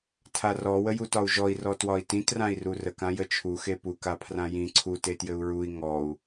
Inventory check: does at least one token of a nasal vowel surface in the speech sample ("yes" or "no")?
yes